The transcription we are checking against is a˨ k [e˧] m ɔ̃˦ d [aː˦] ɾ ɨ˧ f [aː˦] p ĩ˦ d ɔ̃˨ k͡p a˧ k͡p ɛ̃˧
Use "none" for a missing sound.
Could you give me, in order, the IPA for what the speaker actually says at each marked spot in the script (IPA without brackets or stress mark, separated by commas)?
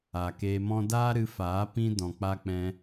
eː˧, aː˦, aː˨˦